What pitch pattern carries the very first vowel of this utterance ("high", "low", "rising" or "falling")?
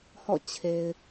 falling